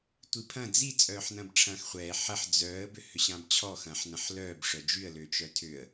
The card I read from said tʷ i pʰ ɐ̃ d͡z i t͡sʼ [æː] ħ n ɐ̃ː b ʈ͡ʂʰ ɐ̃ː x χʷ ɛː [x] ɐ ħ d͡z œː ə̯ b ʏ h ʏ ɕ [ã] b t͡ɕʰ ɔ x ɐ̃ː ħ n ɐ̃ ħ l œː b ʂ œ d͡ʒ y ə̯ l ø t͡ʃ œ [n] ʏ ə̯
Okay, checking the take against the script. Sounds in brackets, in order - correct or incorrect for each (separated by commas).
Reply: incorrect, incorrect, correct, incorrect